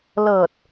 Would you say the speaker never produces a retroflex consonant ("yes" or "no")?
yes